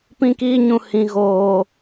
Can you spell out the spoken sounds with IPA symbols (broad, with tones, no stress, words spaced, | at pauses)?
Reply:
pĩ˦kiː˦ɲũ˨ hĩ˨ ɣoː˨